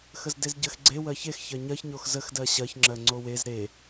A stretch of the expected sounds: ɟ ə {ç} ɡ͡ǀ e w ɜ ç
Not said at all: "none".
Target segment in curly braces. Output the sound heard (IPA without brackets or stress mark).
x